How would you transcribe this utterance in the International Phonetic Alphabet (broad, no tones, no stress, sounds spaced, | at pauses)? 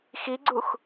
x i ɡ͡ǀ u x